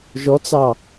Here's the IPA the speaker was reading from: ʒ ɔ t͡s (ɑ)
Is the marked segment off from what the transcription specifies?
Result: no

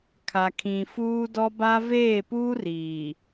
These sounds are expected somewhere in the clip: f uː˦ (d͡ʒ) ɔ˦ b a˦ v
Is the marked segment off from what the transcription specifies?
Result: yes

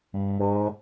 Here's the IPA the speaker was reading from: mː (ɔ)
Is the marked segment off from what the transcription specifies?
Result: no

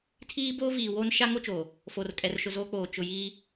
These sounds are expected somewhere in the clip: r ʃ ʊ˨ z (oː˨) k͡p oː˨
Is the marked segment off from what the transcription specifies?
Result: yes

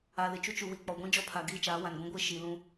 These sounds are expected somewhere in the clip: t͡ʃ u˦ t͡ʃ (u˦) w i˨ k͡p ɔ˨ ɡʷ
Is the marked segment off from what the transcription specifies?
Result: yes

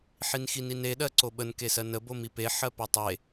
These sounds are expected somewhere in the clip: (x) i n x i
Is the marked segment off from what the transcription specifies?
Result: yes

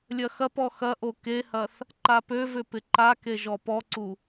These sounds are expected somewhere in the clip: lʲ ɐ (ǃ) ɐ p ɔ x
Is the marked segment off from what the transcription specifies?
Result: yes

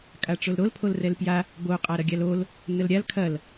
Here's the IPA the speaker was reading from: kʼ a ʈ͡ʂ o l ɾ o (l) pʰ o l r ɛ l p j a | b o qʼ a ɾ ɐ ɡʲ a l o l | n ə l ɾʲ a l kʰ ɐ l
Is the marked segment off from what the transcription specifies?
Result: no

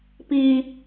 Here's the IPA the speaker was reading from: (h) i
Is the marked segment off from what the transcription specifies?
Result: yes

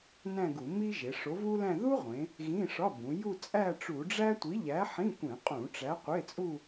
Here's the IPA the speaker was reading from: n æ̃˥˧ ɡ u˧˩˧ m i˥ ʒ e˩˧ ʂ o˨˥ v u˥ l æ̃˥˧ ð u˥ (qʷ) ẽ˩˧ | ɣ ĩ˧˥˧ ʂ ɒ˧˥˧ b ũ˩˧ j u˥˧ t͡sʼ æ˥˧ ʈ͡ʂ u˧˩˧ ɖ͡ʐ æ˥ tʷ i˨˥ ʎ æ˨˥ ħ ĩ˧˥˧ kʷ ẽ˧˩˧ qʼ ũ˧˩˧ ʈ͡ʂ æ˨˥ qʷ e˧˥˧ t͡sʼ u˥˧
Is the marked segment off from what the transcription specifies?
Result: yes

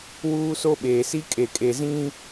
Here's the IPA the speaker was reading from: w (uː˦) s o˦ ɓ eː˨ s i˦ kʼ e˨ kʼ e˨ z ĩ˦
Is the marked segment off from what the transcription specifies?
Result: no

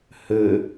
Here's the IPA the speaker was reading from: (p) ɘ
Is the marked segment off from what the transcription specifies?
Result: yes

